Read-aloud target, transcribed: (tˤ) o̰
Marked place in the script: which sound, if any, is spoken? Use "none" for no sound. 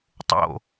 tˤ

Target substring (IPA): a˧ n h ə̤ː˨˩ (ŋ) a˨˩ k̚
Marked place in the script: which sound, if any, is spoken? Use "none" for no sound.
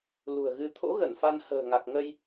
ŋ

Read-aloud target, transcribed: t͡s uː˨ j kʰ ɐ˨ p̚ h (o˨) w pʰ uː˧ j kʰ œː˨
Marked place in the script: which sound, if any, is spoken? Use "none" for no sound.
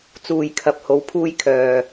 o˨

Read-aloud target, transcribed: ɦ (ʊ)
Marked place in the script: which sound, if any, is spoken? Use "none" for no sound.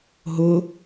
ʊ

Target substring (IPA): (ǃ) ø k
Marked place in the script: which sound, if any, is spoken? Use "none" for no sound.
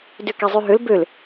d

